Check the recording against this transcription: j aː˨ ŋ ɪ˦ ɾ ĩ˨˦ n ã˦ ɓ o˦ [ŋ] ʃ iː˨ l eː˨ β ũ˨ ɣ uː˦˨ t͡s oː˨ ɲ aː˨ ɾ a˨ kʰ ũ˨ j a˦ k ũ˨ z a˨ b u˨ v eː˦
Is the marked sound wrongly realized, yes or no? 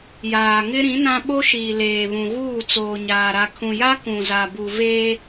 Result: yes